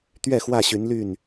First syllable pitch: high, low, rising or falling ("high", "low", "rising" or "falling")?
falling